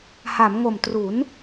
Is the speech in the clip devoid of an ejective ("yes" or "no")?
yes